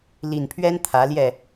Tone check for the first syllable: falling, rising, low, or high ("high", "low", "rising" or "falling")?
low